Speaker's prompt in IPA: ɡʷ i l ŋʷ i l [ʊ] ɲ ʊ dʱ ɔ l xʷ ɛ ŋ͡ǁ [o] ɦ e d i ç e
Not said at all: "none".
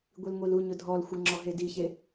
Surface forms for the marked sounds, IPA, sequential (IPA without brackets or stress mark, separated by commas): u, ɔ